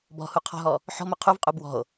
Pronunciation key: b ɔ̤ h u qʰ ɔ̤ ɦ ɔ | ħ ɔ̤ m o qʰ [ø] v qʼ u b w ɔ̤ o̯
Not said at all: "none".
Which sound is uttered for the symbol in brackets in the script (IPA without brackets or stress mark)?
u